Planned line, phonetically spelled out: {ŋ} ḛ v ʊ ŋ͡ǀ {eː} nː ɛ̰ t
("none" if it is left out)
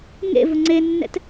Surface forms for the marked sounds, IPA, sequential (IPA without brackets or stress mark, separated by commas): ŋ, e